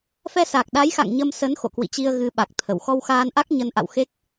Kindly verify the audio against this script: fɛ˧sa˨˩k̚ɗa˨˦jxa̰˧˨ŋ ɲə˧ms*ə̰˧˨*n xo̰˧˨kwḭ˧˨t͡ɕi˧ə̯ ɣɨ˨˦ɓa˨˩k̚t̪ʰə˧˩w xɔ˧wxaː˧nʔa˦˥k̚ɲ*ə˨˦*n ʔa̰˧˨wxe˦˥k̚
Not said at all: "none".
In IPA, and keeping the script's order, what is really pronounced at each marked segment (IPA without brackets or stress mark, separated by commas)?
ə˨˦, ə˨˦